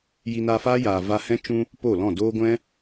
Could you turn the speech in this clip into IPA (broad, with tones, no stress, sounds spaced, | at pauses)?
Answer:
j i˧ n a˧ f aː˦ j aː˨ v a˧ h ɛ̃˦ t͡ʃ ũ˧ | p oː˦˨ l ɔ̃˦˨ d oː˦ ɡʷ ɛ̃˦